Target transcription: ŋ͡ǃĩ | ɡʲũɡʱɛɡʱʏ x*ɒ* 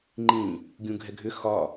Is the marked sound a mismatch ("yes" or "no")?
no